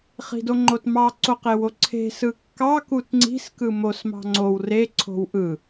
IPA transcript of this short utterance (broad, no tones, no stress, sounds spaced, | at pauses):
χ i̤ d o ŋ͡ǃ o t m ɑ ǀ o q e w o ǀʰ e̤ s ɯ kː ɑ k u t ŋ͡ǀ i̤ s k ɯ m o s m ɑ̤ ŋ͡ǀ o w r e ǀʰ o̤ w ʔ ɯ